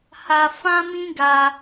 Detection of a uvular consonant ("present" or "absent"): absent